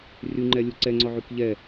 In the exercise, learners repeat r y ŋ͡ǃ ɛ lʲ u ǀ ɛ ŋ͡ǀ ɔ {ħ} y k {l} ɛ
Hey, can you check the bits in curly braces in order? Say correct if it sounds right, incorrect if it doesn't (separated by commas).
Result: incorrect, incorrect